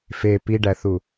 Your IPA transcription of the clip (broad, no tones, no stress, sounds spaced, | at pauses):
f e p i ɖ æ θ u